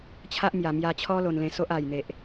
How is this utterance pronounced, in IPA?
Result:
t͡ɕʰa˦ʔmja˨˩ mja˧t͡ɕʰɔ˦ lo˧nlẽ˧so˦ʔ a˨˩jn̪e˨ʔ

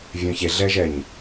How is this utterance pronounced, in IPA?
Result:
vʲœ̃çeɮɛʒɛɲ

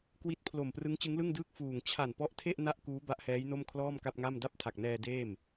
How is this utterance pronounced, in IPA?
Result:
kwi˦˥t̚pʰlo˨˩m prɯ˦˥ŋt͡ɕɯ˦˥ŋlɯ˥˩ŋdɯː˥˩k̚ fuː˨˩ŋ t͡ɕʰa˨˩npɔ˦˥ʔtʰe˥˩ʔ na˥˩ʔkuː˦˥ ba˦˥ʔhɛː˦˥jno˥˩m kʰlɔː˥˩mka˥˩p̚ŋa˥˩m da˥˩p̚tʰa˨˩k̚nɛː˧ deː˥˩m

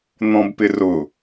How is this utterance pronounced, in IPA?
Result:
n̪ɔ̃bpɪrʊ

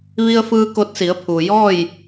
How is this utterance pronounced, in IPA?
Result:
ʋi˧ə̯fɯː˧ ko˧t̚si˩˧ə̯pʰuː˩ jɔː˥˨j

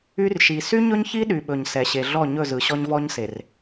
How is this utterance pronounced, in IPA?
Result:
y˦rʃi˨ sy˦ɲɵ˦ɲçi˦ ɗy˨ɓɵ˨ɲsɛ˨ ɕe˨ɮɔ˦˨ɲɵ˦˨zɯ˨ ɕɔ˦ɲvɔ˦ɲ se˨r

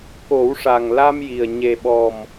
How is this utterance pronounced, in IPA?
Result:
ko˨˩˦wʂa˨˩ŋ la˧mji˨˩ə̯ ɲe˨˩ɓɔ˨˩m

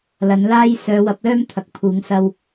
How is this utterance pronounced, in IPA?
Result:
lɐ˨˥nlaː˥j sœː˨˧wɐ˨˥p̚lœː˥m t̪ʰɐ˨k̚pʰuː˨˥ŋ sɐ˥w

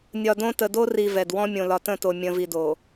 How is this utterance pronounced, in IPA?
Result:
nʲɒ˨dõ˦ tə˨do˦ri˨ vɛ˨dwɔ̃˦ mʲõ˨lɒ˨tə̃˦˨to˨ mʲə̃˨vi˨do˨

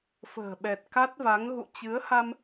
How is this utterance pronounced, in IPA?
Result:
fə̤ː˨˩ɓɛ˨˩t̚ ka˦˥t̚va˨˦ŋ ɣṵ˧˨t͡ɕɨ˨˦ə̯ha˧m

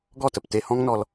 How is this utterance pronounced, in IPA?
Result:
ɡɔ˦˨tə˨pte˧hɔ̃˦ŋ nɔ˧l

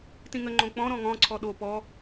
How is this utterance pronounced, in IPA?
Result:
tĩŋəŋ͡ǃõ k͡pɔ̃ ɾɔ̃ŋɔ̃ ǀʰɔɗo pɔ

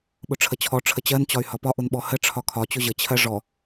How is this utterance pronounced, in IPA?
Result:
ɓʊʈ͡ʂʰət͡ɕʰɔ ʈ͡ʂʰət͡ɕɜn t͡ɕɒy̯hɒpɒ ʔʊnɓɔhə ʈ͡ʂʰɒkʰɒ t͡ɕʊʑə t͡ɕʰɜʐɔ

